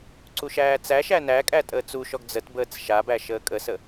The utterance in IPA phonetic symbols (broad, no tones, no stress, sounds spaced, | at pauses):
ǀ u ʃ æː t͡s æ ʃ æ n æ kʼ æ tʼ əː t͡s u ʃ ɔ ɡ d͡z ə t b əː t͡s ʃ a b æ ʃ əː kʼ ə s ə